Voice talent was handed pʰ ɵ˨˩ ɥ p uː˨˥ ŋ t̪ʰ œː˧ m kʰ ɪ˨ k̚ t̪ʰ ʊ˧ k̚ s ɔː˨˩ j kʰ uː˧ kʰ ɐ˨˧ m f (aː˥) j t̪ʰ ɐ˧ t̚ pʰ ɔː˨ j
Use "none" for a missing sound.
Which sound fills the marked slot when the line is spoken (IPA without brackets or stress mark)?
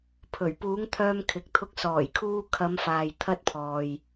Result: aː˨